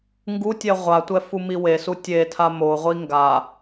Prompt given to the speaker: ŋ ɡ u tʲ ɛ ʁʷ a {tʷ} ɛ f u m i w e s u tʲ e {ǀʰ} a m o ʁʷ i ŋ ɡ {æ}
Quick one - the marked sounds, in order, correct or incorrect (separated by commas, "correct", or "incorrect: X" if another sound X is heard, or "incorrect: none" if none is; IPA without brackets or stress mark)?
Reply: correct, incorrect: tʰ, incorrect: a